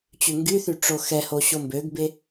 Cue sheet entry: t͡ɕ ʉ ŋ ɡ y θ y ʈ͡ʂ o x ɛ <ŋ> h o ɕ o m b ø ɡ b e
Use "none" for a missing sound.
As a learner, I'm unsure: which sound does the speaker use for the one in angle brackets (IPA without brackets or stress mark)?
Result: none